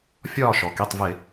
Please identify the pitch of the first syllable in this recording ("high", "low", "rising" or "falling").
falling